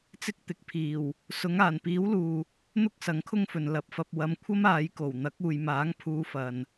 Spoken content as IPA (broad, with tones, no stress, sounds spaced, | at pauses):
t͡s ɪ˥ k̚ t̪ ɪ˨˥ k̚ pʰ iː˨˩ w | s ʊ˨˧ ŋ aː˨˩ n p iː˨˥ w l uː˨ | n̪ ʊ˥ k̚ s ɐ˨˥ ŋ kʰ ʊ˥ ŋ f ɵ˨ n l ɐ˨˥ p̚ f ɐ˧ p̚ w ɐ˨˧ m kʷʰ ɐ˥ m aː˨˧ j k o˨˩ w n̪ ɐ˨˥ k̚ uː˨ j m aː˨˥ ŋ pʰ uː˧ f ɐ˨ n